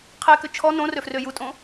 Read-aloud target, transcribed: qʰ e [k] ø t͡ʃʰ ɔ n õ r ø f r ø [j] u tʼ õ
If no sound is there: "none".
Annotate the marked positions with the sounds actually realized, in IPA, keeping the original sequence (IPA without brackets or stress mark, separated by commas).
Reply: k, j